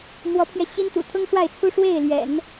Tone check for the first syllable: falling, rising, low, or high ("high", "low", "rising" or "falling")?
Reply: rising